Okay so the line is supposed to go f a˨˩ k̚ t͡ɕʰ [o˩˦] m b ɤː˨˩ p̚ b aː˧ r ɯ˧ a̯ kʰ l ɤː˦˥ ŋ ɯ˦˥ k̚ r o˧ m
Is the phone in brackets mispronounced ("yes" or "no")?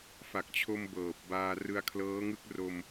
yes